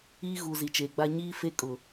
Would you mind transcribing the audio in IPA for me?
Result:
iː˦ ɣ u˨ z i˨ t͡ʃ eː˨ ɡ͡b a˦ ɲ iː˦ f e˦ kʼ ʊ˨

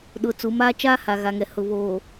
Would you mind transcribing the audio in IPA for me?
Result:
ɗ ʊ˨ t͡s u˨˦ m aː˦ t͡ʃ aː˦ h a˨ ɣ a˨ ŋ ɛ˨ h ʊ˨ β oː˨

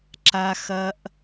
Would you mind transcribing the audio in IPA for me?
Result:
ǁ a˧ x ɐ˧ ʔ

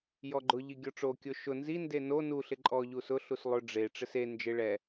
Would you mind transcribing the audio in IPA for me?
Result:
j ɔ ɡ͡ǃ ʊ ʎ i ɡʲ ɔ ʈ͡ʂ o kʲ o ʃ ʊ n z i n d e n o n u ɬ ɪ ǃʼ ɔ ʎ u s ʊ ɬ u s lˠ ʊ ɖ͡ʐ e ʈ͡ʂ ɪ s e n d͡ʒ ɪ ɭ ɛ

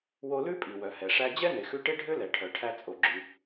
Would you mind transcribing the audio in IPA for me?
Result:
w o˧ l ʉ˥ pʼ i˩ w œ˩ h ɛ˩ ʂ æ˧ d͡ʑ ɛ˥ n e˩ x ʉ˧ ʈ e˥ ɖʱ ø˥ l ɛ˩ ʈʰ œ˩ ʈʰ æ˧ t͡sʼ o˩ ɡ͡ǁ y˩

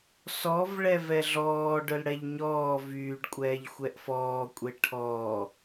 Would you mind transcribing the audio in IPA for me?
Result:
s ɔ v ɭ ɛ v ɛ ɮ ɔː ɖ œ l ɽ ɛ ʎ ɲ ɔː v yː ɖ kʷʼ ɛː ʎ xʷ ɛ ʔ f ɔː kʷʼ e ʈʰ ɔː

